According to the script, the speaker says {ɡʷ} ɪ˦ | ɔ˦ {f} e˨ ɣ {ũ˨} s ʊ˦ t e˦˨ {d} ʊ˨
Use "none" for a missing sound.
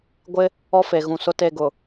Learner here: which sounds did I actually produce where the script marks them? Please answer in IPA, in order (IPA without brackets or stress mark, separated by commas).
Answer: ɡʷ, f, ũ˨, ɡ